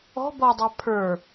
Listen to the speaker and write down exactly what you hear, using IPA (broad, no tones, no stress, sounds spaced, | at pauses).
ɔ̤ b ɔ dˤ ɛ pʰ ə˞